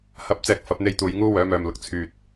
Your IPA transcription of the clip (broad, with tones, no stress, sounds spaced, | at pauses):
h ɐ˨˥ p̚ t͡s ɛː˨ k̚ f ɐ˨˥ p̚ n̪ e˥ j t̪ uː˨˧ j ŋ uː˥ w œː˨˥ m œː˨ m l ʊ˨ k̚ t͡sʰ yː˨ t̚